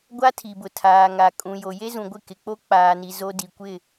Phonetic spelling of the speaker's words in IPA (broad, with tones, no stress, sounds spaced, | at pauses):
ɡʷ a˦ tʰ i˨ b ʊ˨ tʰ aː˨ ŋ a˨ kʼ ũ˨ j o˨ j e˦ z ũ˨ ɡʷ ɪ˦˨ k ɪ˨ k͡p o˦ k͡p aː˨ n i˨ z o˦ d i˨ kʷ ɪ˦˨